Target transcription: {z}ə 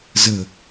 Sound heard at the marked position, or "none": z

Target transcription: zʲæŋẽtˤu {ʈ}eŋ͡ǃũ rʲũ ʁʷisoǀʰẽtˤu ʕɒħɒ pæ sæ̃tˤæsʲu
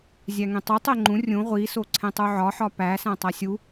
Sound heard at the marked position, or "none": tˤ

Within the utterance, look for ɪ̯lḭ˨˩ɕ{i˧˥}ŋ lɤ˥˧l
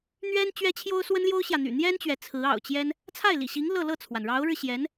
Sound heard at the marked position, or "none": i˧˥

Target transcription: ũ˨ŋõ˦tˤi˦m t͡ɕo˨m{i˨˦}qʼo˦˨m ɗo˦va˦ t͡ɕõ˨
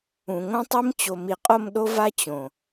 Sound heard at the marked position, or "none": i˨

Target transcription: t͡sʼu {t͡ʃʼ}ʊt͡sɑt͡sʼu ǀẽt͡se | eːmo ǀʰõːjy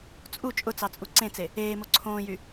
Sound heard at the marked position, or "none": t͡ʃʼ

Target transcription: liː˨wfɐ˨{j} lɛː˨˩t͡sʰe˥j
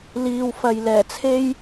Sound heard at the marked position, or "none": j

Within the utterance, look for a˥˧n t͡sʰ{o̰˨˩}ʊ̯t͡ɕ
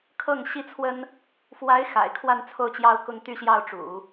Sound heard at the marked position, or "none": o˥˩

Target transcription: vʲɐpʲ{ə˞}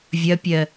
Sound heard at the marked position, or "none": ɜ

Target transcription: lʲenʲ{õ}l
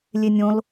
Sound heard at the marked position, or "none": õ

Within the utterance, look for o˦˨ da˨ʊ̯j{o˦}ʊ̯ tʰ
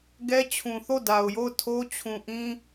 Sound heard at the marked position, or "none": o˦˨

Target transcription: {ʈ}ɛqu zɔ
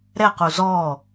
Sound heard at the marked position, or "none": ɾ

